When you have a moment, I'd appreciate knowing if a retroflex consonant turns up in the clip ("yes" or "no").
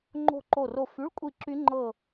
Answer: yes